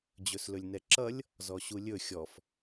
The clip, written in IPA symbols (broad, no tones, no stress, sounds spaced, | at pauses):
d͡ʑ ɵ s l ɵ lʲ n ɛ ǁ ʌ lʲ | z ɔ ɕ u lʲ ɵ xʲ ɔ f